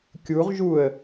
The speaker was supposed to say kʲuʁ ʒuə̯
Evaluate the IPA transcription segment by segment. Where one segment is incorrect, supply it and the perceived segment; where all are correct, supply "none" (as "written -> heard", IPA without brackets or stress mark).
none